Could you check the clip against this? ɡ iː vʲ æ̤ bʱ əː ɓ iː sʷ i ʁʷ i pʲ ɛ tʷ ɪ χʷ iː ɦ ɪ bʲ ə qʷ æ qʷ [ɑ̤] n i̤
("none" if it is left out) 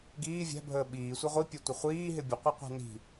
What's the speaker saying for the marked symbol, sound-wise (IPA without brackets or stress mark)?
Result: ɑ̤